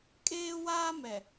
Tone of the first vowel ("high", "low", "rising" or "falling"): high